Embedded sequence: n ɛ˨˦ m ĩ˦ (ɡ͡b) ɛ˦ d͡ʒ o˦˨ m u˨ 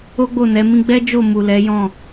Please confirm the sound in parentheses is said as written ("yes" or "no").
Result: yes